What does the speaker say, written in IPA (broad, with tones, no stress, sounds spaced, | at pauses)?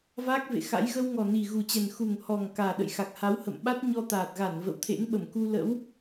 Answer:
v aː˦˥ k̚ v ḛ˧˨ x a̰˧˥ j ɣ ə˧ w ŋ ɔ˨˩ n i˨˩ ɣ u˨˩ t͡ɕ ɛ˨˩ n x u˨˩ ŋ h ɔ˨˩ ŋ k aː˨˩ ɗ ə̰˧˨ j x a˨˩ k̚ h a˨˦ w h ə̰˧˨ m ɓ a˦˥ t̚ ɲ ɔ˧ t̪ aː˨˩ t̚ ɣ a˧˩ n v ə̰˧˨ w t̪ʰ ḛ˧˥ ŋ ɓ ə˧˩ m k u˧ l ə̰˧˥ w